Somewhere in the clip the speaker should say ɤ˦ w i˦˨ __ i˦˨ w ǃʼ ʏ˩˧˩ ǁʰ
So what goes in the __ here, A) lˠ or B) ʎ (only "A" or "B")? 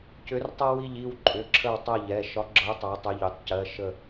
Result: B